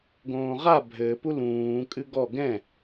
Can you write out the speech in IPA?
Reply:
ɡõːʁa bʱɘpu lũː kʼɨɡɔ ɡɛ̃

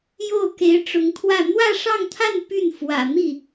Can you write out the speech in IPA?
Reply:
jo˥˩ʊ̯ ke˧˥ɪ̯ʈ͡ʂʊ˧˥ŋt̪ʰwä˥˧ n̪wä˥˧ʂɑ˥˧ŋt̪ʰa˥˧n py˥˩nfwä̰˨˩ n̪i˥˩

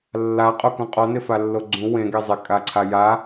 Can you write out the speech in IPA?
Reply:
lːaqʼokũ qʼɔnɪfalːo ɡ͡ǀũ wẽɡe zˤɪkʼaǀʰa ja

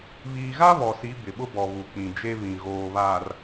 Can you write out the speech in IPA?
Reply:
βiː˨ɣa˦ βɔ˨si˨˦ bɪ˨ɓʊ˦bɔ˨ βu˨k͡pĩ˨d͡ʒe˦βĩ˨ ɣoː˨βaː˨r

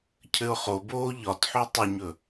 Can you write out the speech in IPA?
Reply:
cʰɘʊ̯χoboː ʎɒtħo tˤəɲɵ

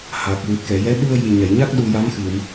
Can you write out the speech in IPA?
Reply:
ha˨˩k̚ wɨ˨˩t̚kɛ˨˩˨jɛ˧˥ ɗu˧ə̯jɨ˨˩jɲɛ˨˩˨jɲa˦˥k̚ ɗu˧ja˧˥mxɨ˨˩˨m

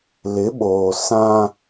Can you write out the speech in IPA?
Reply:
lɪ˨˦ɓoː˨sã˦

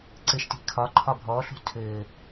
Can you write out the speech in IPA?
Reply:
ǀɘʃti̤ kʰɒ ǃʰɒbʱɔːɬṳ tʰɘː

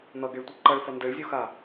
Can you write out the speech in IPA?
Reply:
n̪ʌɡeɭtʷə ǃʌɭfʌ ndeɭzʲuxa

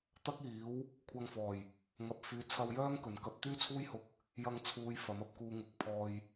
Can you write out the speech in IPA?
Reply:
t̪ɐ˥k̚iː˨˥w | kʷʰɐ˧ŋfɔː˨˩j | ŋɐ˨˥p̚fyː˨˧t͡sʰɐ˧wjœː˥ŋ kɵ˨˩nkɐ˧p̚ t̪yː˥t͡sʰuː˥jhʊ˧k̚ | jɐ˧ŋt͡sʰuː˨˧j fɐ˨˥mɐ˧p̚kuː˧ ŋʊ˨k̚pʰɔː˧j

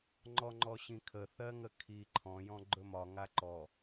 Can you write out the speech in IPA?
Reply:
ŋ͡ǃɔŋ͡ǃɔɕĩkʰə θɜŋəkʰi ǃʰɔ̃ jɔ̃ɡ͡ǃɵmɒ ŋaǃɔ

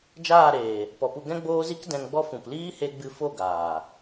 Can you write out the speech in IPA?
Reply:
d͡ʒaː˦˨ɾeː˨ | pɔ˨pu˧ ɡɛ̃˦ɡ͡boː˦zi˦k dɛ̃˧ŋɡ͡bɔ˦ fũ˨p liː˦ he˧ ɡ͡bɨ˧fo˦˨ɡaː˨

